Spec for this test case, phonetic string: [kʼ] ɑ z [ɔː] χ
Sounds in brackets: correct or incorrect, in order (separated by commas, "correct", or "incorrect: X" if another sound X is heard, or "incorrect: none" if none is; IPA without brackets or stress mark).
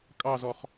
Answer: correct, incorrect: ɔ